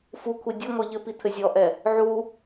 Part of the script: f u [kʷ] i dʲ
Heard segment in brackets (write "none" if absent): kʷʰ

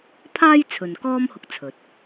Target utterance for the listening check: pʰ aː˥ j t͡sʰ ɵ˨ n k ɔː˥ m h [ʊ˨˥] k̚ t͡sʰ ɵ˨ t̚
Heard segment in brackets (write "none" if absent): ʊ˧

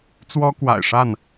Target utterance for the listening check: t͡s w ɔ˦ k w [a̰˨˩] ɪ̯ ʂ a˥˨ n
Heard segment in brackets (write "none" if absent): a̰˨˩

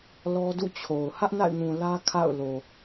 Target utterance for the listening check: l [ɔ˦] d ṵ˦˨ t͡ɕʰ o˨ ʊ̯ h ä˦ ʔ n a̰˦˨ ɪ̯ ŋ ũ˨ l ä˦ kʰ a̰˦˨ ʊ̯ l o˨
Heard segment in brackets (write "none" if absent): ɔ˦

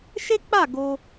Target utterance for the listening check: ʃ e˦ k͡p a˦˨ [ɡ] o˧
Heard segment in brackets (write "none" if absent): ɡ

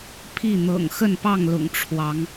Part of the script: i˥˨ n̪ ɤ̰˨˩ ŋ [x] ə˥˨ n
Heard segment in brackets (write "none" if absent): x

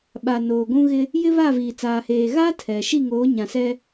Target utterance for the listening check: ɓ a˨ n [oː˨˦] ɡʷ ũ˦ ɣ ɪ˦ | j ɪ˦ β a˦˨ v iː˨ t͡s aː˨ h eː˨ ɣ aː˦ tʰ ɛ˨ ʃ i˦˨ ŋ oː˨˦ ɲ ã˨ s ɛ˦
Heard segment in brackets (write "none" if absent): oː˨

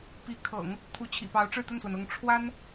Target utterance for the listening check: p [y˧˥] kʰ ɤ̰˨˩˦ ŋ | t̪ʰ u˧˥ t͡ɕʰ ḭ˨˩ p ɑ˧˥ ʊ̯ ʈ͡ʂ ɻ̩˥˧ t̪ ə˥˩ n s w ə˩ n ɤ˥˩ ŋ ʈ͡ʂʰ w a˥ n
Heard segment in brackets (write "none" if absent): i˧˥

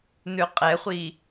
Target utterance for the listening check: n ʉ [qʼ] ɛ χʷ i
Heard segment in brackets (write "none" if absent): qʼ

